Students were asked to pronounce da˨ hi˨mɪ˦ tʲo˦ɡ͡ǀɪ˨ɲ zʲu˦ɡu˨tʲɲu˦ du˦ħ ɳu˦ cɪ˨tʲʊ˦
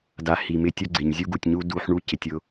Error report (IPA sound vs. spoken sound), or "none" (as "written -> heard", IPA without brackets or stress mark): none